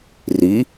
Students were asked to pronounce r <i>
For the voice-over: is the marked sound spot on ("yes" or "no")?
yes